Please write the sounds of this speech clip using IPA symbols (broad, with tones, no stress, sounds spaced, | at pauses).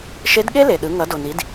ʃ e˧˥ d ɠ e˥ l e˩ ɗ ɯ˩˧ ŋ ʌ˩˧ d o˩ n i˩˧ d